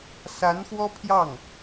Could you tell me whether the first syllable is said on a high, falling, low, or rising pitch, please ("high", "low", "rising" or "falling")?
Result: rising